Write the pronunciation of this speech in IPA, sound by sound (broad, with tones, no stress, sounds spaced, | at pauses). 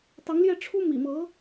t̪ ɑ˧˥ ŋ l j ɛ˥˩ ʈ͡ʂʰ u˥ m ḭ˨˩ m ɤ˧˥